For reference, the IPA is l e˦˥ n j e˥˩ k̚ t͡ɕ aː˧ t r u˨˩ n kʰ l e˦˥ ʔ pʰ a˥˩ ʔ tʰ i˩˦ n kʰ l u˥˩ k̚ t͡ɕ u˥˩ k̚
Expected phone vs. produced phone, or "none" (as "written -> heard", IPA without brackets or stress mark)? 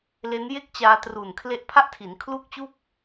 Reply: none